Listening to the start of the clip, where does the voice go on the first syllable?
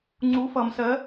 rising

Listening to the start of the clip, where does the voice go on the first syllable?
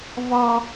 high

